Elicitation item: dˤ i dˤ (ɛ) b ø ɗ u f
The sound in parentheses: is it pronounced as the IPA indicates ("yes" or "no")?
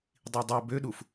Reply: yes